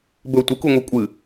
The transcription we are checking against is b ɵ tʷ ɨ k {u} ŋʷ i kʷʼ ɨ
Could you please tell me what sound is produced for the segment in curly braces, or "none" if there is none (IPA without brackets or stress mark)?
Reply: u